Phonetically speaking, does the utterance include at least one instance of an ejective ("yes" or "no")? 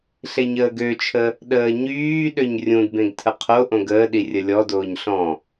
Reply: no